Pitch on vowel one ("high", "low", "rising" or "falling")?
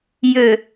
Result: low